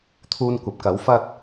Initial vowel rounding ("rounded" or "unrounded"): rounded